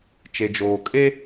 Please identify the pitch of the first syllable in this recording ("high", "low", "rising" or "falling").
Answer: low